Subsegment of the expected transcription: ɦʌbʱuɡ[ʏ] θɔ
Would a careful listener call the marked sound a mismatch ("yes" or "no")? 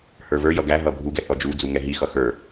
yes